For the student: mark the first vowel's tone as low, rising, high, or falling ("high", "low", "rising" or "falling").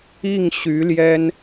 falling